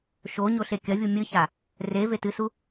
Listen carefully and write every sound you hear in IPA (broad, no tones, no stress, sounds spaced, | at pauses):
ʃ o ɲ o ɬ e kʲ ɐ vʲ u mʲ ɨ ç a | r e v e t ɨ s u